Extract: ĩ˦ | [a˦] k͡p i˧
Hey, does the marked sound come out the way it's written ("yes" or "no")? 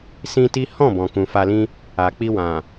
no